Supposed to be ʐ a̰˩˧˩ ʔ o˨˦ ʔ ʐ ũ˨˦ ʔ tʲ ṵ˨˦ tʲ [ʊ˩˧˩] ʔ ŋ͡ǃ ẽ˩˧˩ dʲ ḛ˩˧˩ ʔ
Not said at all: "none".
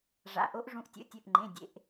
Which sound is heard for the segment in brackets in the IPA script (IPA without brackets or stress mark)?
ɵ˩˧˩